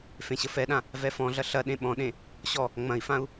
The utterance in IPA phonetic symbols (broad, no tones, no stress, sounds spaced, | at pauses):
f ẽ ɕ ə f ɛ ɗ ã | v ɛ f ɔ̃ ɮ ɐ ɬ ɐ ɗ ẽ ɓ ɔ̃ ɗ ẽ | ɕ ɔ | ŋ͡m ɐ̃ i̯ f ã u̯